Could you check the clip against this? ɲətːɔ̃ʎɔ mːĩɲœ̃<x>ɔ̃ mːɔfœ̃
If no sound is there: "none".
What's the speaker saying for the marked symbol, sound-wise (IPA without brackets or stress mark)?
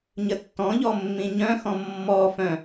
x